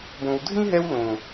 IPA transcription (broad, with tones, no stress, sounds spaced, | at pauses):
b õ˨ w dʱ ĩ˦ ɦ ɛ˧ w l õ˨